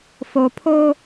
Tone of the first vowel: low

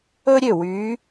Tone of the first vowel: high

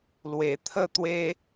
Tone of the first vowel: low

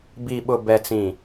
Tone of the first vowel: low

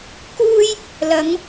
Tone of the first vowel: high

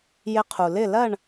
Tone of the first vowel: rising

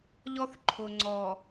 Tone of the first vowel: high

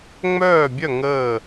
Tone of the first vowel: falling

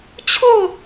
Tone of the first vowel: falling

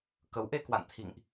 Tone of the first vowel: rising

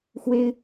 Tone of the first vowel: high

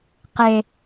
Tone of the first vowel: high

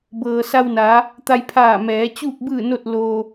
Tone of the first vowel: low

